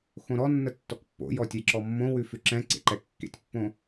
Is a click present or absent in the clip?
present